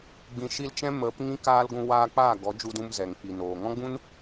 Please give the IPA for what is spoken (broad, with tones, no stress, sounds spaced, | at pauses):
ɡ͡b ĩ˧ ʃ i˦ l t͡ʃ ɛ̃˦ m ə˨˦ p ŋ ĩ˦ k aː˦ l ɡʷ ũ˧ w aː˧ k͡p aː˦˨ ɡ ɔ˨˦ d͡ʒ u˧ d ũ˧ m z ɛ˨ ŋ k͡p i˨ n oː˨ ŋ ɔ̃˦ ɡ͡b ũ˦ n